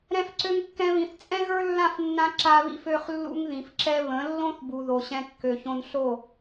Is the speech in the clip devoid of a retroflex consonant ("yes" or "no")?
yes